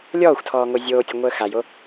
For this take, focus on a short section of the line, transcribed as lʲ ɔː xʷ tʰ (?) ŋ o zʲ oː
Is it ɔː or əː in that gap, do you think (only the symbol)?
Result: ɔː